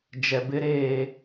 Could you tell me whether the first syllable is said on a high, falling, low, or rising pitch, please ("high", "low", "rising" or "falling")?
low